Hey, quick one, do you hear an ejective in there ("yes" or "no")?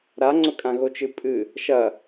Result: yes